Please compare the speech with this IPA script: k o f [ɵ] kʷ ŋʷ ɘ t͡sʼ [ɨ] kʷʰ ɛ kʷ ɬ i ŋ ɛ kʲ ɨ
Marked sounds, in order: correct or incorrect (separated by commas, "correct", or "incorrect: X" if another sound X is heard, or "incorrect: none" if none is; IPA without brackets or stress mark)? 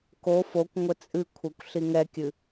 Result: incorrect: o, correct